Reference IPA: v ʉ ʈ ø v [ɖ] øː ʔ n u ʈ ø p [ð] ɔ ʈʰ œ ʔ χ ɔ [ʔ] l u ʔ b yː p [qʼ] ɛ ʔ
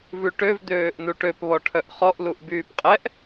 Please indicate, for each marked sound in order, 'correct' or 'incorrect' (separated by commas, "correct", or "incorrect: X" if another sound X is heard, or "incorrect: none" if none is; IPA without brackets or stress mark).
incorrect: d̪, incorrect: β, correct, correct